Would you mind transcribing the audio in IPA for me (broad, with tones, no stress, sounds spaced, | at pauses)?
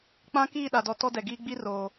k͡p ã˦ k iː˦˨ ɗ a˨ d ɔ˨ t ɔ˦ d ɛ˨ ɡ iː˦ ɡ͡b i˦ r oː˨